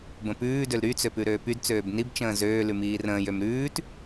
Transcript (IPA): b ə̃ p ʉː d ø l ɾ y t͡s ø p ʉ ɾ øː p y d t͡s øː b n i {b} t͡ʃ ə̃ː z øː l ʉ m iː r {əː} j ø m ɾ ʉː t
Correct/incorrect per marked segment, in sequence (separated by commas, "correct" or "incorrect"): correct, incorrect